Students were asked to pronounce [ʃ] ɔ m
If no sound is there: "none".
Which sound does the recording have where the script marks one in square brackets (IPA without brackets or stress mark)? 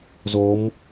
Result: z